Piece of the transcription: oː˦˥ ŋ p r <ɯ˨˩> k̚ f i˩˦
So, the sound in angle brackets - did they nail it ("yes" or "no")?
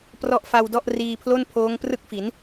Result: no